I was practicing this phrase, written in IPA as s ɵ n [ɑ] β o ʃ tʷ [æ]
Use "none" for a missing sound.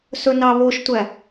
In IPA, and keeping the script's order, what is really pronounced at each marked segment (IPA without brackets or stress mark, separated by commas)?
ɑ, æ